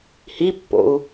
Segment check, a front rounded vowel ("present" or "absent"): absent